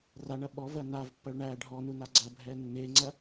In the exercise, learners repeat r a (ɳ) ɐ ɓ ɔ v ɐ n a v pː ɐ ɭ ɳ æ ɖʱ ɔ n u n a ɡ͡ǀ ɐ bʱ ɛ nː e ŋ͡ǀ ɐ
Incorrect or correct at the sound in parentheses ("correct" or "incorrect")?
correct